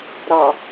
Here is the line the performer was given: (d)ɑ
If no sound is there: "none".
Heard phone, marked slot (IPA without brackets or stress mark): ɾ